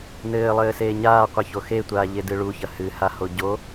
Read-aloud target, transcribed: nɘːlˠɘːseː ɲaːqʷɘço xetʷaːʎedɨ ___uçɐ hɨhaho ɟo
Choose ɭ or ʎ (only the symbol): ɭ